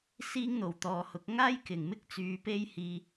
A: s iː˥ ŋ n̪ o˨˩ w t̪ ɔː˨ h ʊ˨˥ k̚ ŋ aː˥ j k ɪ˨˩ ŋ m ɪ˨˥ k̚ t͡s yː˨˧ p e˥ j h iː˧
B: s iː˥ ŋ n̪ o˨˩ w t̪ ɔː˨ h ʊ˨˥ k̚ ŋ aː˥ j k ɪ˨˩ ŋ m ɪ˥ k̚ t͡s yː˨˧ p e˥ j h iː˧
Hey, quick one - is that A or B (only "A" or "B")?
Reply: B